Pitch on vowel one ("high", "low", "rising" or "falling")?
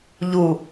low